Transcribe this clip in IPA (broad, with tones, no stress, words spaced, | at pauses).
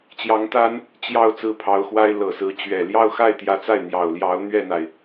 t͡ɕjɑ˧˥ŋt̪a˥n | t͡ɕjɑ˥˧ʊ̯ t͡sɹ̩˥˩pʰɑ˧˥ʊ̯xwa˥ɪ̯ lɤ˨˩sɹ̩˧˥t͡ɕɥɛ˨˩ ljɑ˥˧ʊ̯xa˥˩ɪ̯ t̪jä˧˥t͡sa˥˩ɪ̯ n̪jɑ˨˩ʊ̯ljɑ˧˥ʊ̯ n̪ɥɛ˥˩n̪a˩ɪ̯